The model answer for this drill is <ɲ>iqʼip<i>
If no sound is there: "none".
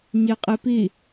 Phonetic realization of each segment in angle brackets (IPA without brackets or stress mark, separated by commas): ɲ, i